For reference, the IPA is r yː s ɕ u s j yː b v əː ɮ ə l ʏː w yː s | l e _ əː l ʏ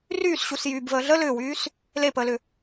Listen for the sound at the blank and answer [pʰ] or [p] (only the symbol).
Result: p